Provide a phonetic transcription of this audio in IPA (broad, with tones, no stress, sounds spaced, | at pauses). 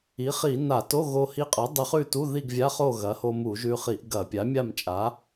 i˩˥ χ i˧˩˧ n a˧˩˧ t o˧˥˧ ɣ o˧ h i˧ qʼ ɐ˩˥ dˤ ɨ˧ χ ʉ˥˨ t u˧˥˧ ð i˥˨ ɡ vʲ a˧˥˧ χ o˥˨ ɣ ɐ˩˥ h o˧ m u˧˩˧ ʒ ʉ˧ χ i˧˩˧ ʔ ɡ ɐ˧˩˧ pʲ a˩˥ mʲ a˥˨ m t͡ʃʼ a˩˥